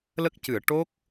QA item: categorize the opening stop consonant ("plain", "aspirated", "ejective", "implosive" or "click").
plain